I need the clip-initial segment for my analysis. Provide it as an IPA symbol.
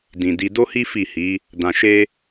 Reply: d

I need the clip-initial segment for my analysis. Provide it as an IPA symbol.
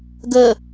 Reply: ɡ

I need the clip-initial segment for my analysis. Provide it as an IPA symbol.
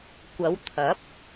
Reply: kʷ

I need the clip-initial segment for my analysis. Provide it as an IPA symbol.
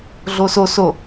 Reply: ɮ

